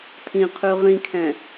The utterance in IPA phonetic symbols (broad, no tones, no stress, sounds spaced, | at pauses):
t̪ʰ ĩ qʰ ʉ ʁ ĩ kʰ ɛ̃